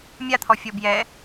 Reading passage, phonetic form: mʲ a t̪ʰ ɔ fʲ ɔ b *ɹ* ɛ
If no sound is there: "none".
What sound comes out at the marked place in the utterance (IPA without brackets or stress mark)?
j